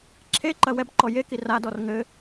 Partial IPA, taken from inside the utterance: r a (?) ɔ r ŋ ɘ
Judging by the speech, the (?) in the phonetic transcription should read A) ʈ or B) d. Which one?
B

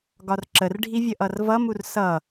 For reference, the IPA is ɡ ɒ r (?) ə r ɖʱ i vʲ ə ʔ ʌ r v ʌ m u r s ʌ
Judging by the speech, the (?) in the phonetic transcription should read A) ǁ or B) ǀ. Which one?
A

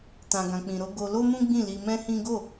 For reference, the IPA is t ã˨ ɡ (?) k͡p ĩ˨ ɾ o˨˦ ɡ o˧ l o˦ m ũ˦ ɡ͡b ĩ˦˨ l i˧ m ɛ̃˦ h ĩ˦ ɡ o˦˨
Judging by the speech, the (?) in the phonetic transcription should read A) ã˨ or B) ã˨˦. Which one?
A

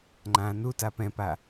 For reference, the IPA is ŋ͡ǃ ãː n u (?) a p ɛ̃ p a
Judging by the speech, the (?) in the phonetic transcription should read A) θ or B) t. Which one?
B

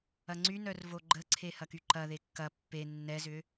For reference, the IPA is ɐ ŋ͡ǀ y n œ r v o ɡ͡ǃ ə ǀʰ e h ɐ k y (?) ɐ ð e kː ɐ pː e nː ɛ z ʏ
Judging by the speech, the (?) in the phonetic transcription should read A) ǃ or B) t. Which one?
A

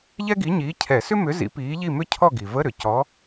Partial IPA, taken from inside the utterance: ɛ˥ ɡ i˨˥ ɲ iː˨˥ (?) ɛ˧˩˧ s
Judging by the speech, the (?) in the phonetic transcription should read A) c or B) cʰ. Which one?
B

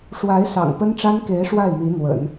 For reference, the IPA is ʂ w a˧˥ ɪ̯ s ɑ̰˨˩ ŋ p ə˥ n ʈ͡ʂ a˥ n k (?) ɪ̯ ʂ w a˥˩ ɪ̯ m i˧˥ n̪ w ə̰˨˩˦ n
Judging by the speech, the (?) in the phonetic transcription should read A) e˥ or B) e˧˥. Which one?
B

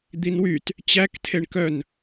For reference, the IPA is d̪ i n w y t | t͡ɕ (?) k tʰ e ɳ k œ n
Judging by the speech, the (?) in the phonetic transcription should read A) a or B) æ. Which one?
B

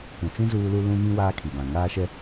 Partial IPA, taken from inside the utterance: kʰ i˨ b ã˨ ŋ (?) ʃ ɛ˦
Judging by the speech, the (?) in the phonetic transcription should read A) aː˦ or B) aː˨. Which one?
A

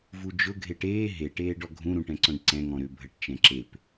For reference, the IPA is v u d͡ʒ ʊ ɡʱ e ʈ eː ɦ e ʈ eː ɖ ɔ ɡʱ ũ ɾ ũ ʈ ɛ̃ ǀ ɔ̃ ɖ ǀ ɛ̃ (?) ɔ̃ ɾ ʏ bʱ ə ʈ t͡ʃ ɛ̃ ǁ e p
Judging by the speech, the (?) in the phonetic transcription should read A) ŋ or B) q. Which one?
A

